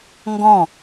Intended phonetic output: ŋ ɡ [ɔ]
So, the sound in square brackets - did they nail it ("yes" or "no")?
no